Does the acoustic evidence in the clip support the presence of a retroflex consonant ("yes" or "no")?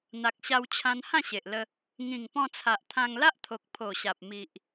no